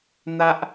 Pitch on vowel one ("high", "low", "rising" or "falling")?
high